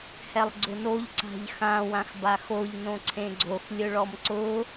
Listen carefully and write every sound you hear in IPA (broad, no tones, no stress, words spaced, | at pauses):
hɛlˠɡ͡ǀʊnoʎ ǀa̤ʎxã wãxbaxoʎ nõǀʰẽɡ͡ǀox lʲʊɭɔmǀʊ